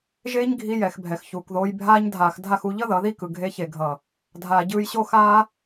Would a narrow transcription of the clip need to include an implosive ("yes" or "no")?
no